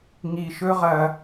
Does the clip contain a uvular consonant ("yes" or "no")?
yes